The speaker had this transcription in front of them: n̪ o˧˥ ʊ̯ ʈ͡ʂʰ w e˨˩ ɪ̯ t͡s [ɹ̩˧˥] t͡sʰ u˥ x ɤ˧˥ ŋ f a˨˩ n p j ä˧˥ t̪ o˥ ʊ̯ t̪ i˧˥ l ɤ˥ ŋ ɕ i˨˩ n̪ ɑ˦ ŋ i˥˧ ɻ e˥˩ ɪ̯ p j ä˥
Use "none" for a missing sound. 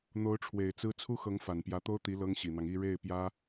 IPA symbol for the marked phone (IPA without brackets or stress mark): ɹ̩˥